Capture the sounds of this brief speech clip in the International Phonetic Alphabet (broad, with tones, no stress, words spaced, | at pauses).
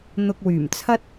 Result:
n̪ʊ˧k̚wyː˨˩mt͡sʰɐ˥t̚